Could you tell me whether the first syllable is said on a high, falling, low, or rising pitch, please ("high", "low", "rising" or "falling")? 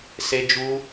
high